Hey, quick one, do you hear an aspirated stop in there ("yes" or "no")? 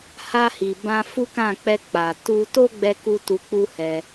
no